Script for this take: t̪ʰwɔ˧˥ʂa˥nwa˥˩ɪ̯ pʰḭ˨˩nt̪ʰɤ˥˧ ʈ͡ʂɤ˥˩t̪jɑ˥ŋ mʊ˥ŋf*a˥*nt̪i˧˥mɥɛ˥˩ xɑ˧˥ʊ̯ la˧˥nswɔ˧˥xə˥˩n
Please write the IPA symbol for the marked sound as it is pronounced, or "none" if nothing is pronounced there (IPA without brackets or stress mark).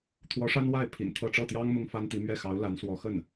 a˥